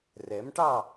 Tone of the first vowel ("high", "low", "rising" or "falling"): rising